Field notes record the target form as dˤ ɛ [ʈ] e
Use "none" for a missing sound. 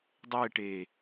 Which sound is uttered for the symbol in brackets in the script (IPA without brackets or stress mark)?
ʈ